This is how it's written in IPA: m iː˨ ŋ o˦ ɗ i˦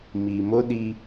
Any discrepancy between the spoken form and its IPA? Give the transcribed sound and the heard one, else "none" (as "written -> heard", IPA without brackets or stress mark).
ŋ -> m